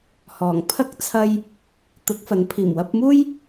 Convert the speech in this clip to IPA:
h ɔː˨˩ ŋ pʰ ɐ˥ k̚ t͡sʰ ɐ˧ j | t̪ ʊ˨˥ k̚ f ɐ˨˥ n pʰ iː˨˩ m w ɐ˧ p̚ m uː˥ j

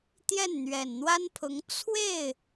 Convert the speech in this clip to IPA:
t̪ j ɛ˥˩ n n̪ ɥ ɛ˨˩ n n̪ w a˥ n pʰ ʊ˧˥ ŋ t͡sʰ w e˥˩ ɪ̯

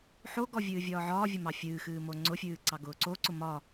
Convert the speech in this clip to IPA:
ħ o ɡ ɔ vʲ ɨː vʲ ɒː ʕ ɒː vʲ ʊ m ɑ fʲ ɨː x ɨː m o ŋ͡ǀ ʊ fʲ ɨː ǀ ɑ ɡ ʊː ǀ o ǀ ʊ m ɒ

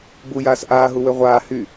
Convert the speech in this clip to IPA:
b u j aː s ʔ aː ɦ u w ø ʁʷ aː h y

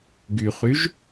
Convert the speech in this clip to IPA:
ɡ y χ y ʒ

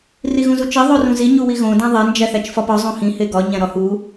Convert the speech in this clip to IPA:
r i ɣ ũ z u t͡ʃ e ðˤ o r ũ z i ɲ u w i ɣ õ d æ̃ ðˤ e n d͡ʒ æ θ æ t͡ʃ f ɒ p ɒ zˤ õ h ĩ h e ɡ ɒ ɲ æ̃ ɾ ɒ h u

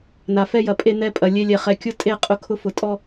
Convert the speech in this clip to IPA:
n a˨ f ɛ˦ j ɐ˨ pʼ e˦ n ɛ˦ pʼ ɐ˨ lʲ e˦ lʲ ɛ˨ χ ɛ˨ kʲ ʊ˦ tʼ e˦˨ qʼ ʊ˦ kʰ ʊ˦ f ʊ˨ tʼ ɔ˦

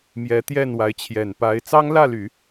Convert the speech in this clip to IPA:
m j ɛ˧˥ t̪ j ɛ˥˩ n w a˧˥ ɪ̯ t͡ɕʰ j ɛ˨˩ n p a˧˥ ɪ̯ t͡s ɑ˥ ŋ l ä˥˩ l y˨˩˦

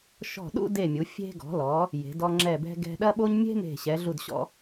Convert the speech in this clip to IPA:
ʃ ɔ̤˧˩ ɗ ṵ˥˧ d e˧˩ mʲ u˩˧ fʲ e̤˧ ɡ ɔ̤˩˧ l ɔ˩˧ | j e̤˩˧ d ɔ˧ ŋ͡ǁ ɛ˧˩ b ɛ̤˧ ɡ ɛ̤˧ ɗ ɐ˥ ɓ o˥ ɲ mʲ e̤˥ m e̤˧˩ ɕ ɛ˩˧ ɮ u˧˩ d ɕ ɔ̰˧

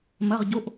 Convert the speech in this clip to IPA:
m ɐ˧˥˧ ʁ ɟ o˧˥˧ ʔ

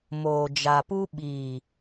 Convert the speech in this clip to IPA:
m oː˨ d͡ʒ a˨ p u˦ ɓ iː˨

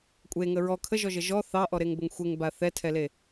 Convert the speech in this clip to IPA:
kʷʼ e ŋ ə ɹ ɔ kʰ ə ʒ ɔ ʒ ə ʒ ɔ θ ɑ ʔ ɔ ɾ e ŋ b ə ŋ xʷ e ŋ b a θ ɛ tʰ ɛ l e

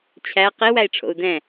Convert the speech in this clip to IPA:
t͡ɕʰ æ q i w æ i̯ ʈ͡ʂʰ o̰ u̯ d ɛ̃

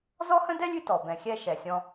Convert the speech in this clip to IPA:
z ɔ˥ h ə̃˥ d ɛ˥ lʲ ʉ˦ t ɔ˩ b ɛ̃˩ xʲ ɛ˦ ʃ ɛ˩ sʲ ɔ̃˨

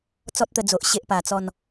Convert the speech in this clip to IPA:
t͡s ɔ˦ t̚ t̪ ə˧ d͡z o˨ ʔ ɕ e˦ ʔ p a˨˩ t͡s ɔ˥˧ n

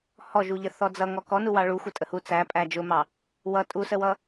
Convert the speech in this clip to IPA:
h ɔ ʒ u ʎ ə θ ɔ d͡z ʌ ŋ ɔ k ɔ n u w ɑ ɭ u xʷ ə tʼ ə h u t͡s æ pʼ æ d͡ʒ ʊ m ɑ | w ʌ tʼ u s ə w ʌ

